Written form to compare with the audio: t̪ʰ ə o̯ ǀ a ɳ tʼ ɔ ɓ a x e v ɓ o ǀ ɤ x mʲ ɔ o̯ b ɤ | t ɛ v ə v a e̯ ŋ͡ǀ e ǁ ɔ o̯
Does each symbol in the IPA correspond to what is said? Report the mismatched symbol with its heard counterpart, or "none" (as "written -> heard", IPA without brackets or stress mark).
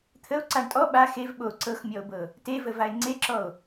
ɛ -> e